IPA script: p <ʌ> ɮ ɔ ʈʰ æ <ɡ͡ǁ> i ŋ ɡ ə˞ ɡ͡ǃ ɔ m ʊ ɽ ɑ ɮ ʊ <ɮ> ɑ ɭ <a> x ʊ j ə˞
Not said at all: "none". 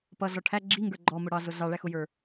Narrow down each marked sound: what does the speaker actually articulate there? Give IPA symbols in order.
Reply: ʌ, ɡ͡ǁ, ɮ, æ

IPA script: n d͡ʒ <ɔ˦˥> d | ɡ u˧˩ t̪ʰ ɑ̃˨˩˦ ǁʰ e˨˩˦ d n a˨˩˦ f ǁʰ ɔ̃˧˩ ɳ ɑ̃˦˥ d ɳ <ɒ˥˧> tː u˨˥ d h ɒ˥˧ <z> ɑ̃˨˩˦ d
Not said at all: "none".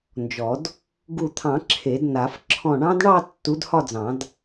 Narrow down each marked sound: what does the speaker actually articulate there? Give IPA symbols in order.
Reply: ɔ˨˩˦, ɑ˥˧, d͡z

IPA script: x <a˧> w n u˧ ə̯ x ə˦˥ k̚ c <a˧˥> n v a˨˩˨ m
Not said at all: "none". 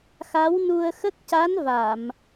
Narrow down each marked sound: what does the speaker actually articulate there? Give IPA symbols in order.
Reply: a˧˥, a˧˥

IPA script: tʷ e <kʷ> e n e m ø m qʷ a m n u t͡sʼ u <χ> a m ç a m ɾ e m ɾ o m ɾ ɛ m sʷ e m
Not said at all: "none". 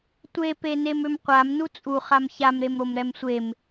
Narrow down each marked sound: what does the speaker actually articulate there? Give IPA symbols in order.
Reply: p, χ

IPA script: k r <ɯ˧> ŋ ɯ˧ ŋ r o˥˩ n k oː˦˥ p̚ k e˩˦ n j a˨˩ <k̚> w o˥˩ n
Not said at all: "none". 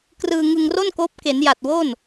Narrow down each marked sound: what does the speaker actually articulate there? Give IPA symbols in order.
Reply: ɯː˧, t̚

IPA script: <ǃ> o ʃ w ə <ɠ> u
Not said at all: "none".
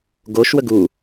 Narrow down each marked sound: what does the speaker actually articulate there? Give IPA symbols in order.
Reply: ɡ, ɡ

